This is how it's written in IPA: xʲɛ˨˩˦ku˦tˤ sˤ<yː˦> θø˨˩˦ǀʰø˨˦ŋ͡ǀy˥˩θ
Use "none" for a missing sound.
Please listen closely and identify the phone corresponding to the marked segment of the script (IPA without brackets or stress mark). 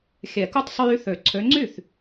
yː˦